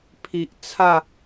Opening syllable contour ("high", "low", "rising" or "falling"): low